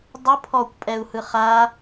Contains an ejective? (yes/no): yes